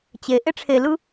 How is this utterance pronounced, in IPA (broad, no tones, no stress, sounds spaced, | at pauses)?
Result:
t͡ɕ e ʔ e ʈ͡ʂʰ e l ɯ